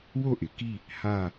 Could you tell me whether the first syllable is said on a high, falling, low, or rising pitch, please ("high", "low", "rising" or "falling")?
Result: falling